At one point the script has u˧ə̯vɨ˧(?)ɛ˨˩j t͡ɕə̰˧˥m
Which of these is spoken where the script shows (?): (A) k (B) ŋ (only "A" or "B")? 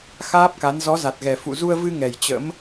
B